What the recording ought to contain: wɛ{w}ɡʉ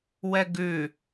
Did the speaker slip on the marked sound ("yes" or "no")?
yes